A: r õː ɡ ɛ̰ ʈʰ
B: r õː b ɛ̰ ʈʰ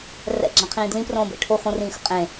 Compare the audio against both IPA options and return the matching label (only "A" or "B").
B